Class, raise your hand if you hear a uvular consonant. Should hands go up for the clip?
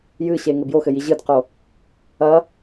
yes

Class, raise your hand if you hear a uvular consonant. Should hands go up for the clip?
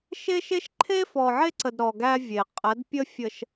yes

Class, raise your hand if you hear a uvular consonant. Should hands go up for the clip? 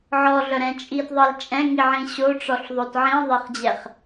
yes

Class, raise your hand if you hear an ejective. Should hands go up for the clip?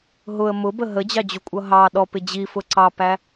yes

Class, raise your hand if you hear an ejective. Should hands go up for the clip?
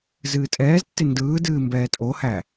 yes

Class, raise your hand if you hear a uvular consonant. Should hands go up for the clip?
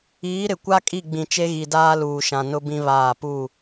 no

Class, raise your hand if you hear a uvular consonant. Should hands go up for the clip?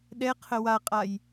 yes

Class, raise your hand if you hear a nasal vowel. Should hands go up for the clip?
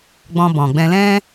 yes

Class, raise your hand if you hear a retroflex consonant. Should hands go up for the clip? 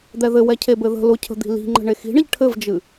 yes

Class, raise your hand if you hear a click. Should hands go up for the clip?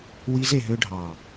no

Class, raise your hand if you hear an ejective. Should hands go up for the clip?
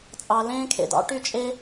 yes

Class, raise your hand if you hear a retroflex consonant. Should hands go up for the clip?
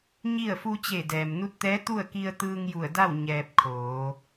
no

